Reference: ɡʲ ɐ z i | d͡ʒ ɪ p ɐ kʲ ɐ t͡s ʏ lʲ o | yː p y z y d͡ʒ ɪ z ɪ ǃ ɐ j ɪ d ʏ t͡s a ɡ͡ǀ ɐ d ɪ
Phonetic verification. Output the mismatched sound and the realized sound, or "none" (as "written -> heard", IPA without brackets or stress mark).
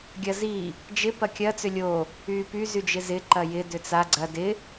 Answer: none